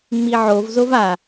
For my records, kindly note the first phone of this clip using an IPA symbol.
ŋ͡m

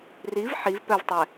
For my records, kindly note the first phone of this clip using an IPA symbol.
r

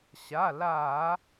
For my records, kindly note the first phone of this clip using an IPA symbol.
ɕ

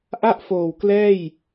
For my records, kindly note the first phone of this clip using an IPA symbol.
ʔ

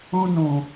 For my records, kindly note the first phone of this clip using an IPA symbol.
ũ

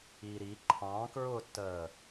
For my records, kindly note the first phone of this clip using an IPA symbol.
i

